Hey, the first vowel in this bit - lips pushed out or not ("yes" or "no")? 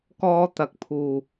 yes